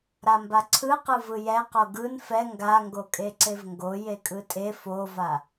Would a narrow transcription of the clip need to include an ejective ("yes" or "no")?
yes